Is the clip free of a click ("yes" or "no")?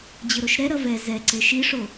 no